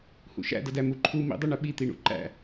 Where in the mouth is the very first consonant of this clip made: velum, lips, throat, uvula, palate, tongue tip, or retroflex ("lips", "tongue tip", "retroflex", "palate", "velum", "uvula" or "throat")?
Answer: throat